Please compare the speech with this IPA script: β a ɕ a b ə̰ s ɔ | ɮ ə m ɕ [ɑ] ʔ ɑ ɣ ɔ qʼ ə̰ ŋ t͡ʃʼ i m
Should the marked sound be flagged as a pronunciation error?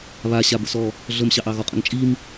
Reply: no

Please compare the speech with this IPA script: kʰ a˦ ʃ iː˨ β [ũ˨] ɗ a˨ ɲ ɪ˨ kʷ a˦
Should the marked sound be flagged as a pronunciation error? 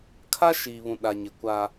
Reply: no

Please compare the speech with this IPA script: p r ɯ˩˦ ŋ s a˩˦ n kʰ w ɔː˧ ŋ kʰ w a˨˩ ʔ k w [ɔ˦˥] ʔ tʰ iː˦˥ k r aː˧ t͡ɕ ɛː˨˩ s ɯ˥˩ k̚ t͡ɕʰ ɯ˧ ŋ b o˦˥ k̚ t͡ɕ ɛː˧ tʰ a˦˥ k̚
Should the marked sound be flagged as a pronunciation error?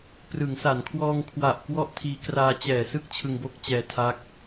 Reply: yes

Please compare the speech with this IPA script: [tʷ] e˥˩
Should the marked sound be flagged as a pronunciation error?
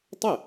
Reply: yes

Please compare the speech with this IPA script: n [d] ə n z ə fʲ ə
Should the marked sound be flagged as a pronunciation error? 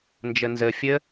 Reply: yes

